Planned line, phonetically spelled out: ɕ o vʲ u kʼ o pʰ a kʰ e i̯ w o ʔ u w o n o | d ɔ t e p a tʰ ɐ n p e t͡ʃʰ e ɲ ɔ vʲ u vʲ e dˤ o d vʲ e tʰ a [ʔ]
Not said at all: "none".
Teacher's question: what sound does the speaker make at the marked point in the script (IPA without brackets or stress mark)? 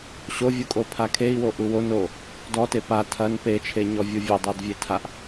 ʔ